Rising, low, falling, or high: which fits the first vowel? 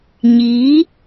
rising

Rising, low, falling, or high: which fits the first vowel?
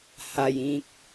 low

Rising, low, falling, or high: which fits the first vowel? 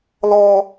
high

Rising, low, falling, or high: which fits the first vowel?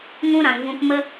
high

